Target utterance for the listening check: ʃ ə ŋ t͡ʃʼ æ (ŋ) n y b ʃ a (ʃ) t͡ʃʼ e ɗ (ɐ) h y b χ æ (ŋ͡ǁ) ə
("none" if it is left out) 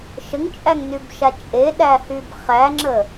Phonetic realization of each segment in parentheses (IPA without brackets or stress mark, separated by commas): ŋ, none, æ, ŋ͡ǁ